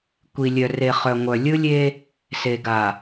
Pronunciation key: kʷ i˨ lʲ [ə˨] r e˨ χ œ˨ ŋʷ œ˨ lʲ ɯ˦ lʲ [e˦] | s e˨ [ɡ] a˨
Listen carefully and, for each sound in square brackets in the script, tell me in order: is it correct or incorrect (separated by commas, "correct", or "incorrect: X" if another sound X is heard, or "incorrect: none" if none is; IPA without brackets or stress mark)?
incorrect: œ˨, correct, correct